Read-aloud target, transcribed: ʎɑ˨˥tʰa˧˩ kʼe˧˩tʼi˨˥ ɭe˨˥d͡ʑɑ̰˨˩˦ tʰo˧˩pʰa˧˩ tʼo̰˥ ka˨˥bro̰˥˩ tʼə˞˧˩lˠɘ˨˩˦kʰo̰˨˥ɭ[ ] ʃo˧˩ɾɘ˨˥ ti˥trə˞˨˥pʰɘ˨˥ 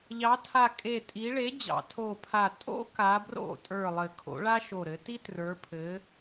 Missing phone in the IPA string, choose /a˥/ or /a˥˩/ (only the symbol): a˥